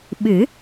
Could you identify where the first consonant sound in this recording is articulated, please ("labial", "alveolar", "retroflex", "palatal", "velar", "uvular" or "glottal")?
labial